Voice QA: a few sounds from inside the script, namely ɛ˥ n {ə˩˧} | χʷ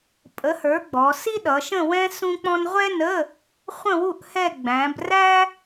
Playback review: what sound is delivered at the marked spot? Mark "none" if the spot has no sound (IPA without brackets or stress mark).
ə˧˥˧